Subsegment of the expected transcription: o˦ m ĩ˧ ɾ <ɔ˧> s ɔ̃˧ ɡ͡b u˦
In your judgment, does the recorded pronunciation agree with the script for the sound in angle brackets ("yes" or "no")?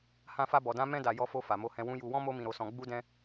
no